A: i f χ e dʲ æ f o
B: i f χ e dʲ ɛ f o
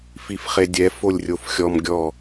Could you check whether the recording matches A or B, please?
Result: B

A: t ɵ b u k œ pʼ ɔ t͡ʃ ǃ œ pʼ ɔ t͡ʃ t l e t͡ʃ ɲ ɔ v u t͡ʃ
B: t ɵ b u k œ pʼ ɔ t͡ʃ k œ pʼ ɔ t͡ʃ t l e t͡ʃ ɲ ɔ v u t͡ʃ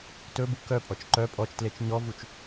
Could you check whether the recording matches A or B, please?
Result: A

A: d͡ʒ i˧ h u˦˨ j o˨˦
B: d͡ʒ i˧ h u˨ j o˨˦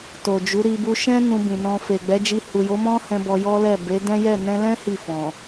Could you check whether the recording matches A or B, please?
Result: B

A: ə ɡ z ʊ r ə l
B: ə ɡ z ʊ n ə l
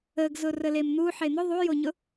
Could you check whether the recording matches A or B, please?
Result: A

